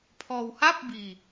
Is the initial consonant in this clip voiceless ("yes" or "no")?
yes